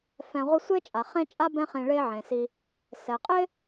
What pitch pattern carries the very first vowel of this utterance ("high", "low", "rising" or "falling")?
low